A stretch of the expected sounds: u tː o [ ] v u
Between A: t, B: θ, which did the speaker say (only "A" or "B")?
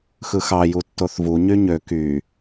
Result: B